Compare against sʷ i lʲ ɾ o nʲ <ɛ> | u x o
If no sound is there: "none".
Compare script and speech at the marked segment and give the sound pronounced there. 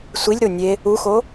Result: e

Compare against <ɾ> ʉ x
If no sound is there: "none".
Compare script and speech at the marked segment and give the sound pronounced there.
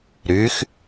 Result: ɾ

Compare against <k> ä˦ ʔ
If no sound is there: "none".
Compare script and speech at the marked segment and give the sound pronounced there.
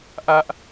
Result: ʔ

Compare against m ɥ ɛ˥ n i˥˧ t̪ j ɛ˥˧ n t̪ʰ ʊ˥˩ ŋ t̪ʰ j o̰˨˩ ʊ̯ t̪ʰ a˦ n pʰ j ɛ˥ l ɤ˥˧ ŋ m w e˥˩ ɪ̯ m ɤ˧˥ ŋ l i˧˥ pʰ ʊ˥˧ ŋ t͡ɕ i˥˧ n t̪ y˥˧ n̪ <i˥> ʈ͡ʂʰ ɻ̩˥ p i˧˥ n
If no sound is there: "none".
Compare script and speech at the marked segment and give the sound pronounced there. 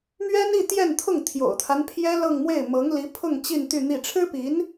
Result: i˥˩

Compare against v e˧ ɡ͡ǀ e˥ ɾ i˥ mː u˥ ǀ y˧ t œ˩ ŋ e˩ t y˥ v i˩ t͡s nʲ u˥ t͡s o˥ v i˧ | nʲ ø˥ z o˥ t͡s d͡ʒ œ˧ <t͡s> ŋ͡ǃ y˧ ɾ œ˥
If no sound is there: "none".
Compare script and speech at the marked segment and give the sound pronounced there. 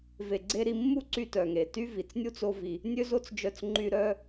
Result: t͡s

